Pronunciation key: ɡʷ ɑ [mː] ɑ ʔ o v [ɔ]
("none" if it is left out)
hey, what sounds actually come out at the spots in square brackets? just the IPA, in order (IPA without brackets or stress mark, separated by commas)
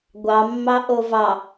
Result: mː, ɑ